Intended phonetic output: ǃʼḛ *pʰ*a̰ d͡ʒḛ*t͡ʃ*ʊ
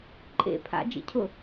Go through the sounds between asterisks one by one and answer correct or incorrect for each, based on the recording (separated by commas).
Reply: correct, incorrect